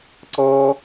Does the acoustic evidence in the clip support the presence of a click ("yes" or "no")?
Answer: yes